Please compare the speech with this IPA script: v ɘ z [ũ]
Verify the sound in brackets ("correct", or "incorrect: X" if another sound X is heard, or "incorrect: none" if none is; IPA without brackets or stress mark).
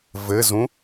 correct